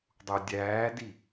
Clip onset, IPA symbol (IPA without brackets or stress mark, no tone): dˤ